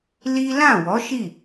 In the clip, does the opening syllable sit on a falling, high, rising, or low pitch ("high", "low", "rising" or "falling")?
high